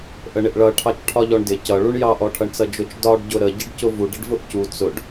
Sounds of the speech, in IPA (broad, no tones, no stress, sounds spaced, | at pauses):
ʔ ə ɳ ɪ ʔ ɭ ʌ ʈʰ ɑ t͡ʃ ʈʰ ɒ ʎ ɔ ɳ d ɪ c ʌ ɭ u ɳ j ɑ ʔ ɔ ʈʰ ʌ ɳ t͡s ʌ d͡ʒ ʊ t͡ʃ d ɒ ɖ ɟ ʊ ɾ ə ɟ ɪ ɖ c ʊ v u ɖ ə ɖ v ʊ ʔ c u t͡s ʊ ɖ